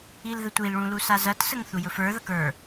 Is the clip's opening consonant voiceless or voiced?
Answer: voiced